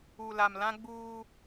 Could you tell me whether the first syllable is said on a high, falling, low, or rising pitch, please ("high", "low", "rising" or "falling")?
low